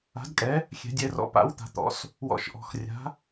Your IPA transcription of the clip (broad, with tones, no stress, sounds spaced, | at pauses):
a̤˩˥ d kʼ ɛ˩˥ | xʲ ɛ̤˩˧ dʲ ɛ˩˧ r ɔ̰˩˧ p a̰˩˥ w t̪ a̤˩˥ t̪ ɔ̰˩˧ s | w ɔ̰˩˥ ʃ ʔ ɔ̤˩˧ x rʲ a̤˩˥